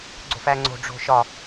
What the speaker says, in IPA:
ɡ͡ǀ o̤ f æ ŋ͡ǀ o̤ ɖ͡ʐ o̤ ʃ ɒ

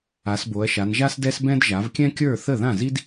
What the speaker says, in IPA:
a˨˦ s b o˨˦ ɐ̯ ʃ a˨˦ n ʒ a˥ s d ɛ˥ s b ɛ̃˥ d ʒ a˨˦ v kʲ ɛ̃˥ kʲ ə˞˥˨ θ ə˥˨ ð ã˥˨ z i˥ d

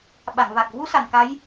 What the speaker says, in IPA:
ɓ a˨˩˨ ŋ v a˨˩ k̚ v u˧˥ s a˨˩ n k a˧˥ j

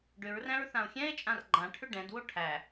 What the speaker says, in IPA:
ɖ ʏ ɹ r æ̃ ɹ θ ã o̯ xʲ ɛ̃ e̯ t͡ʃʼ ã r ɡ͡ǃ ã ʈʰ ʏ ɖ ɛ̃ d w o ʈʰ æ

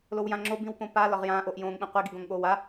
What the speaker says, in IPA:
l o w j ã ŋ͡ǁ o b ĩ w p õ p a l ɒ ʁ j ãː ʔ o ʔ j õː ŋ ɓ ĩ qʷ i ɡ i ɡ õ ŋ ɠ oː w a

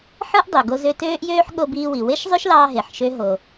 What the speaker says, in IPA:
ħ ɯ˥ ʔ dˤ ø˩ ɡ o˧ z ø˧ t øː˥ ʔ j øː˥ ħ ɠ o˧ b iː˧ w i˩ w e˥ ʃ zˤ ø˥ ʃ l ɑː˧ ɦ e˩ ħ ʃ ø˧ ɦ o˩

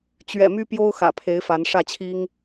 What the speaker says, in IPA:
t͡ɕ ɥ ɛ̰˨˩ m y˦ p j o˦ ʊ̯ x ä̰˨˩ pʰ e˨˦ ɪ̯ f a˨˦ n ʂ ä˥˨ t͡ɕʰ i˦ ŋ

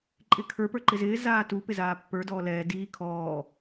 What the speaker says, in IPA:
ǃʼ ɪ kʰ ə˞ p ə˞ ǃ ɪ z ɪː z aː t u p ɪ z aː pː ə˞ d ɔː l ɛː d iː kʰ ɔː

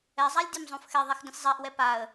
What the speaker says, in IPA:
ɛ zˤ a lʲ dʲ ɛ m zˤ õ f x ɛ ðˤ ɛ x d ə̃ sʲ zˤ a ʔ w ɛ p a ə̯

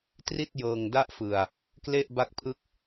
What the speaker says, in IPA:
t r i˥˩ t̚ j ɤː˧ ŋ d a˥˩ ʔ f ɯ˧ a̯ | k l e˥˩ ʔ b a˦˥ k̚ pʰ ɯ˦˥ k̚

